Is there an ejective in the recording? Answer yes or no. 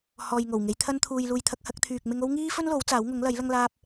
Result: no